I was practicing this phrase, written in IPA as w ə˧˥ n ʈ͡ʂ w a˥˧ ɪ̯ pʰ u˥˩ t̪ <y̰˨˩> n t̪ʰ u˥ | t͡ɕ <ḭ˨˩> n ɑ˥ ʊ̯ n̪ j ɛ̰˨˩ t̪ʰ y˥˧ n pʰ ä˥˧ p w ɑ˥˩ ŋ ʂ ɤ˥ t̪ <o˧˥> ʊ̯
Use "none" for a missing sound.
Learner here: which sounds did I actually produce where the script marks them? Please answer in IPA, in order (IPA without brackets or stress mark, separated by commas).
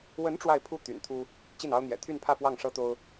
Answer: y̰˨˩, i˥˩, o˥